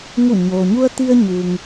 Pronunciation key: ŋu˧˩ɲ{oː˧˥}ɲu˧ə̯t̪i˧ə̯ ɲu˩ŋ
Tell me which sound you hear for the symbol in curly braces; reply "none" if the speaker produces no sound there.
oː˩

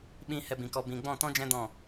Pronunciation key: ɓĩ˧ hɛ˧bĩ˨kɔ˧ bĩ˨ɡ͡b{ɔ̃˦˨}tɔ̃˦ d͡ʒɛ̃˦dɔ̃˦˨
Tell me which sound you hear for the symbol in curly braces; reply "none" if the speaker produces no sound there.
ɔ̃˦˨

